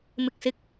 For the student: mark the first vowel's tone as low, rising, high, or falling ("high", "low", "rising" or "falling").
low